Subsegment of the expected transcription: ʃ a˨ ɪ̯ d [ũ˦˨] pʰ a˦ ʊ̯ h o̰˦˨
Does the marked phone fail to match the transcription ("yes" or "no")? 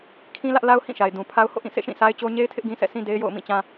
yes